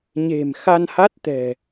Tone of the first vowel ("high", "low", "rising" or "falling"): low